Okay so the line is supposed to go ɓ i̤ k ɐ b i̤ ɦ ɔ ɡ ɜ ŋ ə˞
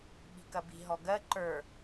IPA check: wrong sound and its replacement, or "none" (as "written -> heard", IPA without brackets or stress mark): ŋ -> ǃ